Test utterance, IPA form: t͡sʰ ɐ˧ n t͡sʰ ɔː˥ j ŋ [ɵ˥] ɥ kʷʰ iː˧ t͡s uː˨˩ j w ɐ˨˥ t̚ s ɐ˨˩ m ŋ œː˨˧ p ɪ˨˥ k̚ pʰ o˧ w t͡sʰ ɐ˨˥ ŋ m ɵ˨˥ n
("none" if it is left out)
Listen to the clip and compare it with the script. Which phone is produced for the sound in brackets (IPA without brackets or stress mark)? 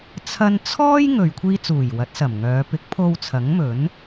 ɵ˨